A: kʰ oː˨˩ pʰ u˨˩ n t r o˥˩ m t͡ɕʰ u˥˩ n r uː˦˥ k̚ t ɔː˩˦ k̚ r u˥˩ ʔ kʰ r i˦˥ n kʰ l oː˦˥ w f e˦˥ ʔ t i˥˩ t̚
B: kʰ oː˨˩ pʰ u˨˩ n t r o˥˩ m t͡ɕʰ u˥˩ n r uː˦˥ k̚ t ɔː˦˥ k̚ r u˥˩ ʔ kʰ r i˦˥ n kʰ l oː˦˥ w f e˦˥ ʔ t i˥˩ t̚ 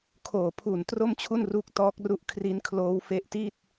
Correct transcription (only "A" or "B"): B